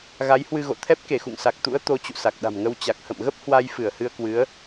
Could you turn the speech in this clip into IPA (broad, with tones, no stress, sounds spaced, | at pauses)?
ɣ a˨˦ j h w ɨ˧ ɣ o̰˧˨ t̪ʰ ɛ˦˥ p̚ k e˧˩ x ṵ˧˨ ŋ s a˨˩ k̚ t̪ ṵ˧˥ ə̯ t̪ o˨˦ t͡ɕ ṵ˧˨ s a˨˩ k̚ ɗ a̤˨˩ m ŋ ə˧ w t͡ɕ a˨˩ k̚ h ə̰˧˨ m ɣ ə˦˥ p̚ h w a˧ j f ɨ˧˩ ə̯ h ɨ˧ ə̯ k w ɨ˨˦ ə̯